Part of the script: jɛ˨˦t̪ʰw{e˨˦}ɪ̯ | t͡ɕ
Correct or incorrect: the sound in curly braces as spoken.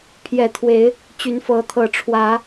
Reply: correct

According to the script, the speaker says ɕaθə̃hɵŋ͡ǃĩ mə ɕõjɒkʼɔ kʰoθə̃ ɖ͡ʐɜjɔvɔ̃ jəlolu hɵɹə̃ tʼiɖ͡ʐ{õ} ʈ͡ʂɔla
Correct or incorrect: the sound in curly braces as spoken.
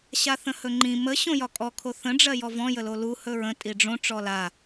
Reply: correct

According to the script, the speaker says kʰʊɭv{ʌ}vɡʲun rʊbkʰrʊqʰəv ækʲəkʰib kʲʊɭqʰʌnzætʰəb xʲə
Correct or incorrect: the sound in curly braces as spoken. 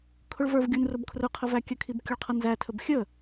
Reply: incorrect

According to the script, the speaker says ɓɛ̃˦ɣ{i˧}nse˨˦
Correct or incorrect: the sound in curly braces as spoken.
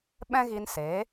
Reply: correct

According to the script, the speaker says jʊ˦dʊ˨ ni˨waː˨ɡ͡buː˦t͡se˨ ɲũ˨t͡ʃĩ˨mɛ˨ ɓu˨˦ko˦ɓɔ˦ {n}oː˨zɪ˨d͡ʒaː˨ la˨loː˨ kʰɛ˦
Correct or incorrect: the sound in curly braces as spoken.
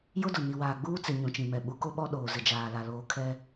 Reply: incorrect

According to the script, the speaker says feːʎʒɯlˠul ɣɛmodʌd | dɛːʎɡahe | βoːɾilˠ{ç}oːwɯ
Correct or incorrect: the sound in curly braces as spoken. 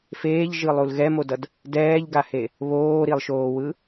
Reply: incorrect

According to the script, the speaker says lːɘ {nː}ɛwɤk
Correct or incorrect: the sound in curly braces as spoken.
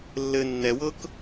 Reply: correct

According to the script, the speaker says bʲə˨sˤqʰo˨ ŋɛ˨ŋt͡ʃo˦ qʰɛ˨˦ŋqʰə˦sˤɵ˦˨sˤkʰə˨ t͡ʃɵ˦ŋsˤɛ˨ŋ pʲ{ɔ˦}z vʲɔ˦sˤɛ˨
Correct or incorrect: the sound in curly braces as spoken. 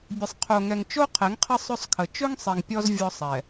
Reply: correct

